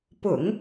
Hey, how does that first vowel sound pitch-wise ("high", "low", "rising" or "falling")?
low